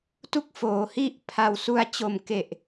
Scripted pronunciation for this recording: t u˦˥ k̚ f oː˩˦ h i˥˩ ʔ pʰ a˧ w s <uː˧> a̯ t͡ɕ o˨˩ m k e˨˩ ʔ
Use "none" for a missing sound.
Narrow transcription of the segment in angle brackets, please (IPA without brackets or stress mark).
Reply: u˧